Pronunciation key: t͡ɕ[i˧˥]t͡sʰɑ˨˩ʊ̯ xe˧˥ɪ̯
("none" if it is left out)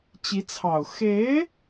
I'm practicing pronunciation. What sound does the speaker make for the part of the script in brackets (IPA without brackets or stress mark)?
i˧˥